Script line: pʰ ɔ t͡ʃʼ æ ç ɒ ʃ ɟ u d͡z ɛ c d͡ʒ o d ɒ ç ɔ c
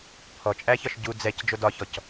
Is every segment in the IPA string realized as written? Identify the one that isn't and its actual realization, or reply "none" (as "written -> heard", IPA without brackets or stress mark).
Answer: none